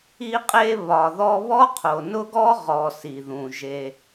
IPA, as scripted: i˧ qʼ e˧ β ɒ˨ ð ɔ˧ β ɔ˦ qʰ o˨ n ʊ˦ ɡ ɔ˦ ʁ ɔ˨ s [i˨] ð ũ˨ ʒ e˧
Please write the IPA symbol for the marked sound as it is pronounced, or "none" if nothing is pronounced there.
i˨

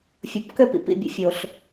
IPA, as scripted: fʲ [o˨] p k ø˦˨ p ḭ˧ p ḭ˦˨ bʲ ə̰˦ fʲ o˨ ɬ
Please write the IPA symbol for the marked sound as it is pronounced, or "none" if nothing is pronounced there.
o˨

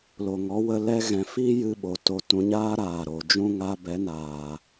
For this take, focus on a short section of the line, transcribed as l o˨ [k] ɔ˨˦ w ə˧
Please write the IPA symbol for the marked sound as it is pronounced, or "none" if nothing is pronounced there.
ŋ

